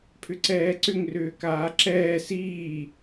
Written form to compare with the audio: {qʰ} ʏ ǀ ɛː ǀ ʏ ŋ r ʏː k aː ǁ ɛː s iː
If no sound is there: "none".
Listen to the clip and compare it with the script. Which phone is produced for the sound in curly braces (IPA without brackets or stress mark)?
pʰ